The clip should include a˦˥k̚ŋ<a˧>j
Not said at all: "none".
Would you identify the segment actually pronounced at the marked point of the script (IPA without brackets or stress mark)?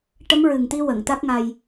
a˧